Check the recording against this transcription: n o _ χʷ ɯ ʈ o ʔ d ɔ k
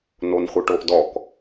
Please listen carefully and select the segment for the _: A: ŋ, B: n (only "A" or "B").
B